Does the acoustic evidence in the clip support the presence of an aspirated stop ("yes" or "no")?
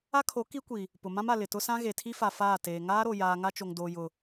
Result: yes